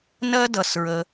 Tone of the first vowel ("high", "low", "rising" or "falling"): high